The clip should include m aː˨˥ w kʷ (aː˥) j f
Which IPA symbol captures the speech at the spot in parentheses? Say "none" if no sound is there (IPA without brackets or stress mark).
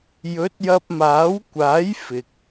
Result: aː˨˥